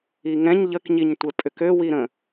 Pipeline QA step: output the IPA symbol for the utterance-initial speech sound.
i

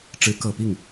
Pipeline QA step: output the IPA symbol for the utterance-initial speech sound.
ʈ͡ʂ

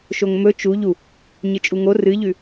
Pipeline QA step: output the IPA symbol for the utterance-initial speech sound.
ʃ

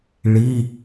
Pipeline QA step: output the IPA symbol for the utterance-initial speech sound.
ɭ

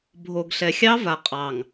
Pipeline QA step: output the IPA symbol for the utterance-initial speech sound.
bʱ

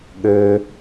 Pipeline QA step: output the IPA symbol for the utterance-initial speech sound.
ɠ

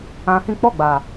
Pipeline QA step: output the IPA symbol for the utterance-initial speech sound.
ã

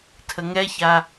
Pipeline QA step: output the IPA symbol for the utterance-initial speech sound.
tʰ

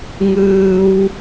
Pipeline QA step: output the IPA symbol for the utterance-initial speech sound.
ŋ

